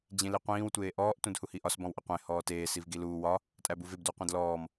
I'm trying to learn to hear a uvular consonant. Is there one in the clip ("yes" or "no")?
yes